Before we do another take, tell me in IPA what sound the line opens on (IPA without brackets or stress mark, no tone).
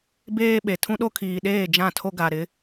b